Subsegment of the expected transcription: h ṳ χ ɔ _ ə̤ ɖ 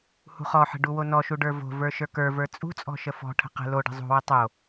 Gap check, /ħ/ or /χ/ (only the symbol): ħ